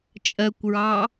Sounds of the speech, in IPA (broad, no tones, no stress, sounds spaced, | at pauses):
t͡ʃʼ ɜ kʷ ɹ ɑ